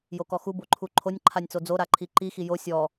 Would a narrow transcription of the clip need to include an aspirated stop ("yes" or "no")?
yes